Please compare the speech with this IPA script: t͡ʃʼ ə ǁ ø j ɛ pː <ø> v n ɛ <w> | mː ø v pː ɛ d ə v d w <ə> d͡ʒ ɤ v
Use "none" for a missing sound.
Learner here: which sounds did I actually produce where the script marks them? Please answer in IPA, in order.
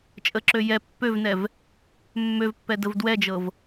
ø, v, ɛ

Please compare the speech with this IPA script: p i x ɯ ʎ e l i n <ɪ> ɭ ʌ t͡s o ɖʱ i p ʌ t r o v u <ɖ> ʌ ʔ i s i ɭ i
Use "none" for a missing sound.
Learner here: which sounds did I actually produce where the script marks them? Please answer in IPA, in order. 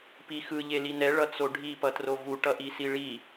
ɛ, ʈ

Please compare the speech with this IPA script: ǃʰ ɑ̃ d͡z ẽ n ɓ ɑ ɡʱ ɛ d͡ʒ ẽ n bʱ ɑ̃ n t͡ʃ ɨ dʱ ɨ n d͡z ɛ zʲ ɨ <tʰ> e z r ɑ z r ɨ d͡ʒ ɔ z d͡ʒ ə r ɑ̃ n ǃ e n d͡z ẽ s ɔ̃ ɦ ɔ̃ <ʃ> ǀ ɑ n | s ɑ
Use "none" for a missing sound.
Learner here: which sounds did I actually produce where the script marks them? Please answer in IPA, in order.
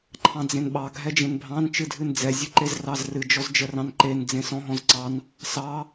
ǃ, z

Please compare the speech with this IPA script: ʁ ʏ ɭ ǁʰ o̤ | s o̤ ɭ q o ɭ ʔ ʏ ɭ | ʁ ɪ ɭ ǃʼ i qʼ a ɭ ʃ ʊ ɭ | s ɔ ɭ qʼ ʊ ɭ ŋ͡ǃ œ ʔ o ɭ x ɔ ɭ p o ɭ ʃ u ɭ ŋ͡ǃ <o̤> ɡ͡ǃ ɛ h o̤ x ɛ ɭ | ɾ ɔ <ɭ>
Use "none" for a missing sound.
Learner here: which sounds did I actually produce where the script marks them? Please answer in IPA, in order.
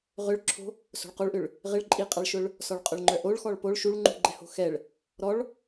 ṳ, ɭ

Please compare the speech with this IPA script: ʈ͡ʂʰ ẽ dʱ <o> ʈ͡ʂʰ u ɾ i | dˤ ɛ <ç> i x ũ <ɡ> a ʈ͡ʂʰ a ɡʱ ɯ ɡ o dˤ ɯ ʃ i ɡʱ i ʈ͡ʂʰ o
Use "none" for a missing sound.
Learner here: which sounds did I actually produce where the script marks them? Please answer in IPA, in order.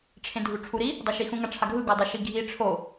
u, ʃ, ŋ

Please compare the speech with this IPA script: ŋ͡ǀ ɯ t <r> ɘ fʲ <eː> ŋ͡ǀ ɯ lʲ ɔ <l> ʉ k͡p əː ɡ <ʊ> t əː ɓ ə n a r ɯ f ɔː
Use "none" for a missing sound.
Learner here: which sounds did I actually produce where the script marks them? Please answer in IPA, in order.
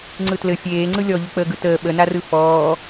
l, eː, ʎ, ɯ

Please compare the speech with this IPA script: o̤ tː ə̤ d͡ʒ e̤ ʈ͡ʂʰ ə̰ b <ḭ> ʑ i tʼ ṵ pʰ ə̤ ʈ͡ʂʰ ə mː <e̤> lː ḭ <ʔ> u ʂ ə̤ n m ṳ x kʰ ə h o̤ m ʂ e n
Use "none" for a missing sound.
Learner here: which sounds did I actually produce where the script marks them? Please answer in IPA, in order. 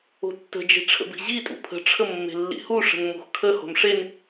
i̤, e̤, h

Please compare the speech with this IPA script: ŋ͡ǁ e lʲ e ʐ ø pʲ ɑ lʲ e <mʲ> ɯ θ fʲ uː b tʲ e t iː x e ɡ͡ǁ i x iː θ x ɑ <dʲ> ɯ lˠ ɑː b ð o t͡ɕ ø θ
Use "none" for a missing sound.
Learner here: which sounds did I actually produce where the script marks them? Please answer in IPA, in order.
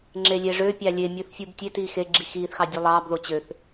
mʲ, dʲ

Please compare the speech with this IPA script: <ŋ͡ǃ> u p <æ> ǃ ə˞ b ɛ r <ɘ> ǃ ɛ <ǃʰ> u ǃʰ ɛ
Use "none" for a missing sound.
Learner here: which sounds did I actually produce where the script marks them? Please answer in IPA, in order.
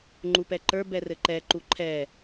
ŋ͡ǃ, ɛ, ɘ, ǃ

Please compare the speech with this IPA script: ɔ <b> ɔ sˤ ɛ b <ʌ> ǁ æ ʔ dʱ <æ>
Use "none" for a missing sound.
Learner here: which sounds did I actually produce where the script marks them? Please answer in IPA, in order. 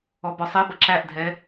b, ʌ, ɛ

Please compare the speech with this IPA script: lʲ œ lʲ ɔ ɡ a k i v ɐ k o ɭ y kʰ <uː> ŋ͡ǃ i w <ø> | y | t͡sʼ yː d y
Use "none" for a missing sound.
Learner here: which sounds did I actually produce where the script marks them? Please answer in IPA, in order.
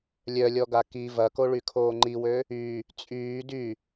oː, ø

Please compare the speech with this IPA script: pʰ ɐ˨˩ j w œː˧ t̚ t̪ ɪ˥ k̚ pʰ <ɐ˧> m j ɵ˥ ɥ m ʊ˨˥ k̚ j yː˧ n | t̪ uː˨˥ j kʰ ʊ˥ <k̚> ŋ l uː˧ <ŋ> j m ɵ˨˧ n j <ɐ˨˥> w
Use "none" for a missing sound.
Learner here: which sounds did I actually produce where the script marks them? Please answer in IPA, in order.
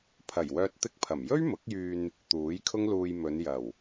ɐ˨˩, none, none, ɐ˨˩

